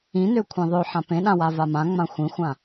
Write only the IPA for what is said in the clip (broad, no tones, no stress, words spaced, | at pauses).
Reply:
ĩnø kʷʰĩðˤø ħãpẽɗãwa vamãŋ͡mã xʷĩxʷã